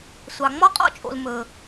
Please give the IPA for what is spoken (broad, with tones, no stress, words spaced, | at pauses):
sʷɑ˩ŋ͡mɔ˥qʼɔ̰˥t͡ʃʼo̰˩l mɵ˩